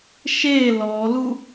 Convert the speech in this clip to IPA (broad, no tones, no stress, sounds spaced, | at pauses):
ʃ e l ɔ l u